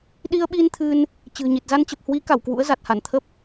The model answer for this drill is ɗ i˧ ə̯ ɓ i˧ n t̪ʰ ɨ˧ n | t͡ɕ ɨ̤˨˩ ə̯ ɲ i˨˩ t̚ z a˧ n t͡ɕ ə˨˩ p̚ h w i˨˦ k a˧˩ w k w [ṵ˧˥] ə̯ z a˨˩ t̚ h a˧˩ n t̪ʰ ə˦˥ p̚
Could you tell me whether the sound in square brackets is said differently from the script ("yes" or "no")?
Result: no